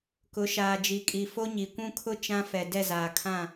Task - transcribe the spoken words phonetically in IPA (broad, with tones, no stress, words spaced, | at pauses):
kʊ˨˦ʃaː˨d͡ʒi˨kʼi˨ fo˦ɲi˨kʷũ˦ kʰʊ˦ t͡ʃã˦fɛ˨ dɛ˦˨zaː˨kʰã˦˨